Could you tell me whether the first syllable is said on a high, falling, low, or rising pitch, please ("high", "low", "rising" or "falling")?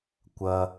low